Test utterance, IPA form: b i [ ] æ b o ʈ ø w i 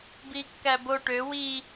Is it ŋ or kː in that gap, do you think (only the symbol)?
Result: kː